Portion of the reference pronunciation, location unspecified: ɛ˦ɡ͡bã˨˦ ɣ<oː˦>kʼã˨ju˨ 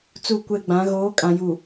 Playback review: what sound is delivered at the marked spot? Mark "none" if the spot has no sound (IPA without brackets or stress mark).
oː˨˦